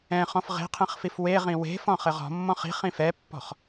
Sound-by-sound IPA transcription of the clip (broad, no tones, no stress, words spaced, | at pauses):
ɛ̃χɔ̃f ʁe̤qʰẽχfif weʁĩ we̤fɔ̃χɘʁ ɔ̤mːɔ̃χ i̤χĩ fɛpːɔ̤χ